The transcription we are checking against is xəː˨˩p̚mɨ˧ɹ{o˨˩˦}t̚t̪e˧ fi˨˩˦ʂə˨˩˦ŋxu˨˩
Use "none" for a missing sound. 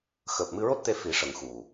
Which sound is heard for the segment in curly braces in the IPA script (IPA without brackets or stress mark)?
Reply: o˦˥